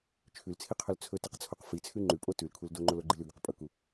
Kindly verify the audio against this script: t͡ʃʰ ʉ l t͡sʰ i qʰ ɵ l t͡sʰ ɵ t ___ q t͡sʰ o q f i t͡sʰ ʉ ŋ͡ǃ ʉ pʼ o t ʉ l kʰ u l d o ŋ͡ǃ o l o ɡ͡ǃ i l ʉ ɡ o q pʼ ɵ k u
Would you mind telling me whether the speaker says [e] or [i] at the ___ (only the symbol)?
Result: i